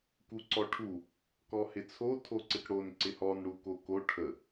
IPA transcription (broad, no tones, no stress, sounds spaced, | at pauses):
k u ǀ ɔ ʈʰ u | k ɔ h ɪ t͡sʰ o tʰ o ǀ ɪ k ɽ o n ǀ ɪ h ɔ n ɽ u k o k o ʈʰ ə